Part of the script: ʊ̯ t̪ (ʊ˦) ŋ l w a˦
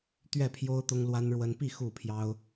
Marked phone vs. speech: correct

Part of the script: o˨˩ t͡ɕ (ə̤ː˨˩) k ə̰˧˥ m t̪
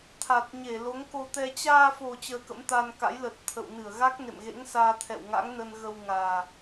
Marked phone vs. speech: incorrect: əː˧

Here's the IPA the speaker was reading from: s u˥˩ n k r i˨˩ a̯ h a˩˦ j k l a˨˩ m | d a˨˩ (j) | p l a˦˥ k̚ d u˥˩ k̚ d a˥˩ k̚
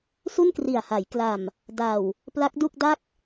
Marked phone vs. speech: incorrect: w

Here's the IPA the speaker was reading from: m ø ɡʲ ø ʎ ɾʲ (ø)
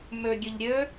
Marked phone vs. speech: correct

